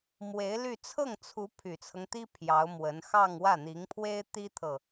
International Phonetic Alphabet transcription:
m w e˧˥ ɪ̯ l y˥˧ t͡sʰ ɤ˥˩ ŋ t͡sʰ u˧˥ pʰ y˨˩ t͡sʰ ɤ˦ ŋ t̪ i˥ pʰ j ɑ˧˥ ʊ̯ m w ə˧˥ n x ɑ˥˧ ŋ w ä˥˩ n̪ i˧˥ ŋ pʰ w e˥ ɪ̯ t̪ i˥ t̪ʰ ɤ˨

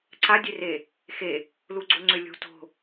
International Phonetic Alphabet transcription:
ǀ a dʲ e r e | x e | l u ɡ͡ǀ o ŋ͡ǀ ø lʲ o̤ t o̤

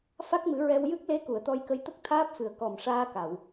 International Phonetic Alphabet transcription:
f a˦˥ k̚ m ɨ˨˩˦ ɹ ɛ˧ w j ɨ˦˥ k̚ l e˧˥ k u˨˩˨ ə̯ t̪ ɔ˧ j k ə˧ j t̪ ə˦˥ k̚ t̪ʰ aː˦˥ p̚ f ɨ˨˩ ə̯ k ɔ˨˩ m ʂ aː˧ k a˨˩˨ w

